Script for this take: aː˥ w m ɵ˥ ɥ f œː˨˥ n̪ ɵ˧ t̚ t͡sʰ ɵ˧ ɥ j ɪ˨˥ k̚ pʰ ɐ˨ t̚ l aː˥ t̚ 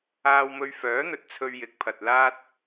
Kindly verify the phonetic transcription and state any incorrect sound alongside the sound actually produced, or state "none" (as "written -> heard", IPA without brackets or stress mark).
none